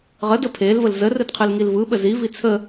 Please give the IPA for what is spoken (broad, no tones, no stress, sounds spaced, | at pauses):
ʁ ə d ə pʰ e l v ə l z ə r ɯ d qʰ ɯ l ŋ i l v ɯ ɓ ə z i v i t͡sʰ ə